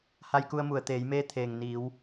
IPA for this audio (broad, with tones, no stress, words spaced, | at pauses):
ha˧jku˧ə̯mu˩ə̯ t̪eː˩˧jmeː˧˥ t̪ʰeː˩ŋ niː˩˧w